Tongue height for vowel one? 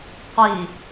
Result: high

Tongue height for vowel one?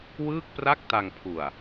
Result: high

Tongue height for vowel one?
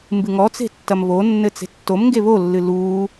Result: high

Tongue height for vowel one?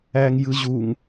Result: low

